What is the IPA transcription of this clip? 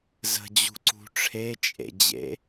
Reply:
z ə̤ d͡ʑ ṳ ǀ ṳ ʈ͡ʂʰ e t͡ʃʼ ḛ d͡ʑ ḛ

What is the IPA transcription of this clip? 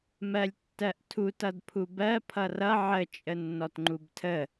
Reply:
m ɜ lʲ tː ɜ ʔ tʰ u t ʌ d pʰ u b ɜ pʰ ʌ r ʌ ʕ ə t͡ʃʼ ə nː ɔ t ŋ͡ǃ u b tʰ ə

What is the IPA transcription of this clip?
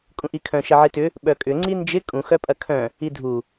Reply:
kʼ ũ ʔ i kʰ œ̃ ʃ ɐ ʕ i t ʏ | ɓ œ kʼ ʏ ŋ͡ǀ i n d͡ʒ ɪ kʼ ũ x œ pʼ ɐ kʰ œ̃ | i dʱ u

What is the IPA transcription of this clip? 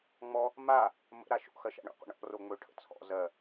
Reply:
ŋ͡m ɔ | m a | m ə̰ ɾ a ʃ o̰ x ɜ ʃ a̰ ɳ o̰ qʷ ə̰ ɳ ɔ̰ r o ŋ͡m ɵ ʈʰ ə̰ t͡sʰ ɔ̰ z ɜ

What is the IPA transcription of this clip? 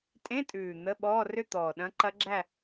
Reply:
tʼ ẽ˧˥˧ tʼ ʉː˨˩ n̪ ə˧˥˧ ɓ ɔː˧˥˧ r ʏ˥˧ t̪ ɔː˨˩ ɗ ɐ̃˧˥ ǃ ɐ˧˥ ɡ͡ǁ æ˥˧

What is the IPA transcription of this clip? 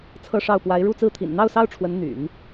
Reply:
t͡sʰ ɤ˥˧ ʂ ɑ˥˩ ʊ̯ p w a˧˥ ɪ̯ ɻ u˥˧ t͡s ɹ̩˥˩ t̪ʰ ḭ˨˩ n n̪ ɑ˥˩ ʊ̯ s ɑ˥ ʊ̯ ʈ͡ʂʰ w ə˧˥ n n̪ y̰˨˩˦ n

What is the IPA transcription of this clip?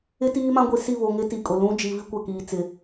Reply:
ɪ˦ t iː˦ m ã˦ ɡʷ i˨ s i˦˨ β o˨ ŋ ɪ˦ t i˨ kʼ ʊ˨ l ũ˦ d͡ʒ i˨ v i˦ kʷ ɛ˨ k iː˨ t͡s ɪ˨

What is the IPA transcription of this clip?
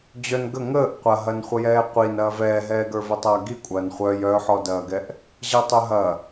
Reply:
d͡ʑ œ n ɡ ə ŋ əː ʔ qʷ ɐ ɦ ɐ n χʷ ə j ɛː qʷ i n ɐː v ɛː ɦ ɛː ɡ ə˞ v ə tˤ ɐː ɡ i kʷʼ ɐː n χʷ œ j œ ħ ɔ d ɐː ɡ ɛ ʔ | ʑ ɛ tˤ ɵ ɦ ɐ

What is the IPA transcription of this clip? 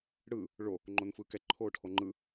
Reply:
ɽ ɯ | ɭ o | ŋ͡ǃ o n f ɯː k ɛ ǃʰ oː ʈʰ o ŋ͡ǃ ɯ

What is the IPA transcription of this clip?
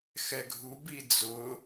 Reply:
x ɛ ɡʱ u b i d͡z ʊ

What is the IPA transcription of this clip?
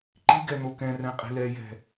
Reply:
ǃ i ɡ ɛ n̪ o k ɛ̃ r ɛ̃ qʼ i̤ l ɛ j ɛ̤

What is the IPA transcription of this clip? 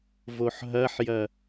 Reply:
v o ħ ɦ ɐ ħ j ɐ

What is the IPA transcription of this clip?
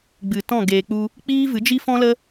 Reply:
ɡ͡b ɨ˨ t ɔ̃˦˨ ɡ eː˨ k͡p u˧ | k͡p iː˦ v ɨ˨˦ d͡ʒ i˦ f ɔ̃˦ l ə˦

